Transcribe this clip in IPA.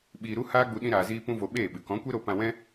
ɓiː˧ɾu˦ haː˦ɡ͡bu˧ ɗĩ˦ɾaː˧ziː˦ pũ˦vo˧ɓeː˦˨ɓɨ˨ kɔ̃˨˦kʷe˦ɾo˧ pã˧wɛ̃˦

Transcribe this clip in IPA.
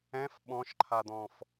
ɛ̃f ɓɔ̃ʃǃʰad̪ɔ̃f

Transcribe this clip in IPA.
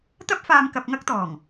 t̪ɐ˥p̚faː˧m kɐ˧p̚ŋɐ˥k̚t̪ɔː˨˩ŋ

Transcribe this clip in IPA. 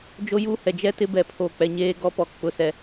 d͡ʒo˦ju˦hɛ˨ d͡ʒɛ˦tɪ˦bɛ˨ pʰo˨k͡pɛ˨ ɲeː˦ɡɔ˦pɔ˨ k͡pʊ˦sɛ˦

